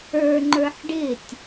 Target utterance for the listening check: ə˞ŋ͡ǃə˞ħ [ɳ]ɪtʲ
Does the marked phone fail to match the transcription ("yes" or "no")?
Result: yes